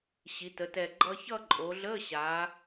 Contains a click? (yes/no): yes